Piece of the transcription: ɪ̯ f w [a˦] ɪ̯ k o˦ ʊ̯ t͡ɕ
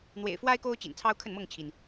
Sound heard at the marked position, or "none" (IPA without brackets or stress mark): a˦